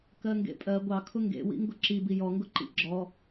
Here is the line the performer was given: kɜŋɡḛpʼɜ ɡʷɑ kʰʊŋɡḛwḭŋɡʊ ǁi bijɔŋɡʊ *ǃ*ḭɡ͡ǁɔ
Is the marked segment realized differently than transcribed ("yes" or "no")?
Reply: no